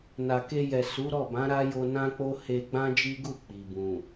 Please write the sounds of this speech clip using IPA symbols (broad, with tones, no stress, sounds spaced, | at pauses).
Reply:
n a˨ k e˧ j ɛ˨ s u˨˦ ɾ ɔ˦˨ b ã˨˦ ɾ a˦ j o˧ n ã˦ k͡p o˦ h e˧ ɡ͡b ã˦ d͡ʒ i˦ ɡ u˦˨ k͡p i˨ b ũ˨